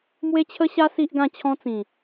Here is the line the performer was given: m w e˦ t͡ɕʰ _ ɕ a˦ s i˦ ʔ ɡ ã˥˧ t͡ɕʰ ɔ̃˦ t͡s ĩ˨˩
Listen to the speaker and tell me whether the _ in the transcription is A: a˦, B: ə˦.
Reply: B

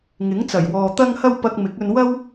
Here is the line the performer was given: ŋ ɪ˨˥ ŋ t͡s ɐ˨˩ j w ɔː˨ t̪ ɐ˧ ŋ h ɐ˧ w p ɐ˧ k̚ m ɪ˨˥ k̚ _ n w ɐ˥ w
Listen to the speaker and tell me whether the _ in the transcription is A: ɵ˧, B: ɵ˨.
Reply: A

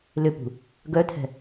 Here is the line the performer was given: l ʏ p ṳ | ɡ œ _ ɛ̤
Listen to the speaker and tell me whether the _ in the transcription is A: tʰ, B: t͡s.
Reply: A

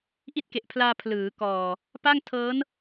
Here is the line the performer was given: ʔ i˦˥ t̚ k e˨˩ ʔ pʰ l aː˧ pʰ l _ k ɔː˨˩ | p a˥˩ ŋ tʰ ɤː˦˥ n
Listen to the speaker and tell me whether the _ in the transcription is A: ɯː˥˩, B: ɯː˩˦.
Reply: B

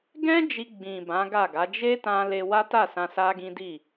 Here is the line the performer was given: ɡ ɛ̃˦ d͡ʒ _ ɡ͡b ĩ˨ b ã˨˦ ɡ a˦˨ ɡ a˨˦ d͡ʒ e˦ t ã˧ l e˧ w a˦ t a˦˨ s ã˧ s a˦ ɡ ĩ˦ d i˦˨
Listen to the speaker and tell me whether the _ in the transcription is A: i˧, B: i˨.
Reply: A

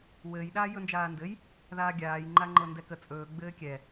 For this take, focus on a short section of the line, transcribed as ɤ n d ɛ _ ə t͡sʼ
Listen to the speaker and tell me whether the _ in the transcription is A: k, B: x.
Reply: A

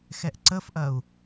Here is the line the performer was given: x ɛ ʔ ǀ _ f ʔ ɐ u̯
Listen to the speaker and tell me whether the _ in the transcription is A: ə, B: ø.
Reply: A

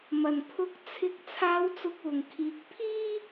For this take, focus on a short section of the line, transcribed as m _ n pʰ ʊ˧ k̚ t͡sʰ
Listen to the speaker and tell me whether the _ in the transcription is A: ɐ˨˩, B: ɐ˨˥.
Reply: A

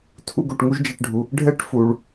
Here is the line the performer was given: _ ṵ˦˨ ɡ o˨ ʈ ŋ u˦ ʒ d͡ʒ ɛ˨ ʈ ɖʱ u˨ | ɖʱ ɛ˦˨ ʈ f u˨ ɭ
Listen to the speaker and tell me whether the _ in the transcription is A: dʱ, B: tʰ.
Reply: B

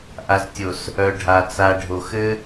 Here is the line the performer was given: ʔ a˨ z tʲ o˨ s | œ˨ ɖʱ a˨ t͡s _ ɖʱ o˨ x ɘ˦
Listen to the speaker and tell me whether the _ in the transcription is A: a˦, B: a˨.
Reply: B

